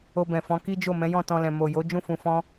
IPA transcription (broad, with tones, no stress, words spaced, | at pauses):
o˧bɛ̃˨ fɔ̃˨˦ki˦d͡ʒo˦˨ mɛ̃˨˦jɔ̃˦˨tɔ̃˧lɛ̃˨ mo˨jo˨˦ d͡ʒũ˦˨ fũ˧fɔ̃˦